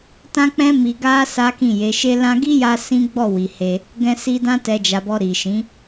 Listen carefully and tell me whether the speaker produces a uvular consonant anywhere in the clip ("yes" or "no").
no